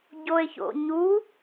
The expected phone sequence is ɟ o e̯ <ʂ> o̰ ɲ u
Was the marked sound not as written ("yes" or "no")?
yes